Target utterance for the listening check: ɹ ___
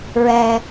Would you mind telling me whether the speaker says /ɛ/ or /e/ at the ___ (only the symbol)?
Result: ɛ